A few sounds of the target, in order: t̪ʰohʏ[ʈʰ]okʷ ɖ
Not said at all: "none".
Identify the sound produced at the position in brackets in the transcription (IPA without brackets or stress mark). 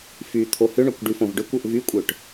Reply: ɳ